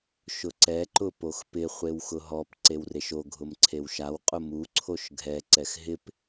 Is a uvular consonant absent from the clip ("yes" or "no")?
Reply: no